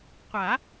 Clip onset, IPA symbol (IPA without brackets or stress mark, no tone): qʷ